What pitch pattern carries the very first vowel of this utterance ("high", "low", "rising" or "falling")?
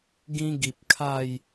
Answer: high